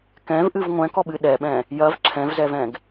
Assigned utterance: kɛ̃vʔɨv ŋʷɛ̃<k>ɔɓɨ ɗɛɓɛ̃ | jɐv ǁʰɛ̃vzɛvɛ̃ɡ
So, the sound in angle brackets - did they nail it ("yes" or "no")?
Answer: yes